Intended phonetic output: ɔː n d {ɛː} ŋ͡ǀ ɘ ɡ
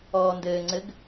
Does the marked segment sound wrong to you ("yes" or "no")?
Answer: yes